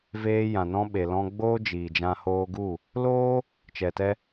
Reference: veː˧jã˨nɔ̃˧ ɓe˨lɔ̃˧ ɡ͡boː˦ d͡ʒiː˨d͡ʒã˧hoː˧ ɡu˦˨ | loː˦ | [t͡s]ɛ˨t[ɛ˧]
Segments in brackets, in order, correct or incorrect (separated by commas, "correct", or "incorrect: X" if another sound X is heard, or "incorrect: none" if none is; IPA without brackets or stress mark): incorrect: t͡ʃ, correct